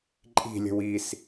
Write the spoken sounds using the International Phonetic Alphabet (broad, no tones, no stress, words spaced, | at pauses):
ǃʼi̤lʲə̤w is